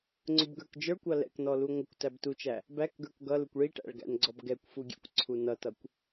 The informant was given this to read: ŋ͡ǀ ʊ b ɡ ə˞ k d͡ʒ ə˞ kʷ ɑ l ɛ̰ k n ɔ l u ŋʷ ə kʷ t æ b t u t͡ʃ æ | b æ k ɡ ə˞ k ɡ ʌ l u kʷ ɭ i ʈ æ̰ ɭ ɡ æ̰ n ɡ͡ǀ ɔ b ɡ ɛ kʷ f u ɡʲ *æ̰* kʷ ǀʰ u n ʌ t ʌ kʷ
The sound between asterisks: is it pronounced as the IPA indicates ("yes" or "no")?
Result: no